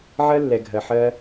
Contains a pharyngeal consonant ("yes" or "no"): yes